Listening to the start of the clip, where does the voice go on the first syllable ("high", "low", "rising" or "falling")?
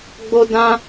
high